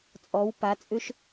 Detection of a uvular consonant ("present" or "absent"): absent